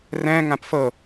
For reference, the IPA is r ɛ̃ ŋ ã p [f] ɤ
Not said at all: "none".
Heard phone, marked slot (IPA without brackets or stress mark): f